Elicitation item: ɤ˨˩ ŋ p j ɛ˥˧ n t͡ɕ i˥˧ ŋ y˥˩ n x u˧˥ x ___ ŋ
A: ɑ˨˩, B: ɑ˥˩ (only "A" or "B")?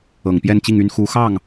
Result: B